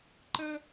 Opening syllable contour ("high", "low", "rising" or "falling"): high